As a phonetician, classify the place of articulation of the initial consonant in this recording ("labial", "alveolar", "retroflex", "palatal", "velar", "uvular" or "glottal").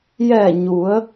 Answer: palatal